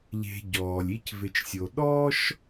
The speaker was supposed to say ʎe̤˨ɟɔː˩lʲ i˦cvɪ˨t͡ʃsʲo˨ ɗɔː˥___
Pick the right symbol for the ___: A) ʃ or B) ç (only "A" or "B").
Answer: A